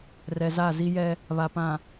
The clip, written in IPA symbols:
r ɛ˨ z a˦˨ z i˦ j ɛ˦ | β a˨ p ã˨

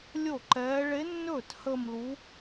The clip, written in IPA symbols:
lʲ o˥˩ ǃ ɛː˧˥ ɭ e˧˥ nː ɵː˥˩ t h əː˥˧ m l u˧˥

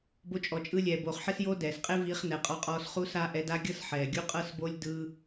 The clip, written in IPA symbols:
b o˧ t͡ʃʼ ɔ˨ t͡ʃʼ ɯ˧ lʲ ɛː˨ b oː˨ χ ħ e˦ s j oː˦ d ɛː˨ s qʼ e˦ v iː˧ χ n ɛ˨ qʼ ɔ˧ qʼ ɔː˧ s χ u˦ s a˦ ʔ ɛ˧ d a˦ ɡʲ ɤ˦ s ħ ɛː˨ ɡʲ u˦ qʼ ɤ˦ s b o˦ lʲ d ɯː˦

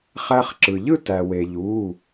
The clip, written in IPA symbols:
χ æ˧ χ ǁ ɯ˩ ʎ ɯ˥˧ t æ˩ w e˩ ʎ u˩˧˩

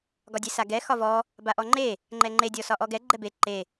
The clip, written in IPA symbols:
ɡ ɒ dʲ e s a ɡ ɛ x ɒ v ɔ | b a ʔ ɔ ŋ͡ǃ e | ŋ͡ǃ ɛ ŋ͡ǃ e dʲ ɔ s ɒ ʔ ɔ ɡ ɛ ɡ͡ǃ ɛ b e ǃ e

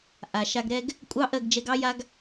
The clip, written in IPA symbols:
ʔ a˨ ʃ a˧ ɡ ɾ ɛ˦ ɡ | kʷʼ ɑ˦ ʔ ɜ˦˨ ɡ d͡ʒ ɛ˧ ɡ ɑ˦ j a˦ ɡ

